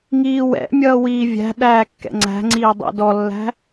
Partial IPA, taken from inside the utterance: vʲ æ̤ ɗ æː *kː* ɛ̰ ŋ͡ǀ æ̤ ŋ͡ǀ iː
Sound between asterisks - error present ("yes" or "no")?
no